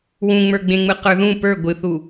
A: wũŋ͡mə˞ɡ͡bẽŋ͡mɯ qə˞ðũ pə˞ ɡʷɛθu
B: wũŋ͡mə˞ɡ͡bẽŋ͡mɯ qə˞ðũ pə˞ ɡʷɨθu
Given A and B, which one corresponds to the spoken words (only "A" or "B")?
B